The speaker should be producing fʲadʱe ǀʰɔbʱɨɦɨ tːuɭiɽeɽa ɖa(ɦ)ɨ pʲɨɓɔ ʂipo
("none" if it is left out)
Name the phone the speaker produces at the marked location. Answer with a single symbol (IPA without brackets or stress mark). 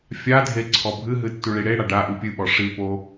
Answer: ʔ